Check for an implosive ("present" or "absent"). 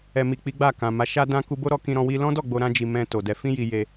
absent